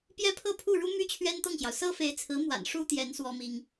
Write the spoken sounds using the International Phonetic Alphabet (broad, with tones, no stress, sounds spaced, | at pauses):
p j ɛ˥ pʰ ɤ˥˧ pʰ u˥˩ ɻ u˥ m y˥ t͡ɕʰ ɥ ɛ˥ n t̪ ɤ˥˩ ŋ ɕ j ɑ˩ ʊ̯ s ɤ˥ f e˧˥ ɪ̯ t͡sʰ ɹ̩˧˥ m w a̰˨˩ n ʂ u˥ t̪ j ɛ˧˥ n s w ɔ˥ m i˥ ŋ